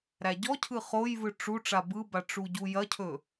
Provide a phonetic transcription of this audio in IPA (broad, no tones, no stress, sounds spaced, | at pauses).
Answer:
ɾ æ ɟ ɔ cʰ ɯ χ o j v ɯ ʈ͡ʂ u ʈ͡ʂ a b ɯ b a ʈ͡ʂ u ɟ u j ɐ cʰ ɵ